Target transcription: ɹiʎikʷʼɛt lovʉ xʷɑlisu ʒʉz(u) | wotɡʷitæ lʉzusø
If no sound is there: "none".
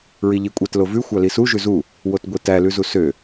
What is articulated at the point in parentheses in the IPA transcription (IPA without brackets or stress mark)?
u